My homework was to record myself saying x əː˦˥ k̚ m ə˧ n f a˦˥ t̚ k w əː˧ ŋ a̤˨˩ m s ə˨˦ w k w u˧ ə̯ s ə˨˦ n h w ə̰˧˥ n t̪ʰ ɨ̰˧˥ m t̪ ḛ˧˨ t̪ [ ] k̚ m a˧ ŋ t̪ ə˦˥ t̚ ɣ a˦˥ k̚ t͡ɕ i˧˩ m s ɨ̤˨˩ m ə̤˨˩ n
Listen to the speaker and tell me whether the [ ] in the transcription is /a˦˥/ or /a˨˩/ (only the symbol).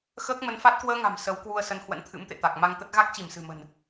a˨˩